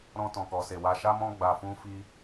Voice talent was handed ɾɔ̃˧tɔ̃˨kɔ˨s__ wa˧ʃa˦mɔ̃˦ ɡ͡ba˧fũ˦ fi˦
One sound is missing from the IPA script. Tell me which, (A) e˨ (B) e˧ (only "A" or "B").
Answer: A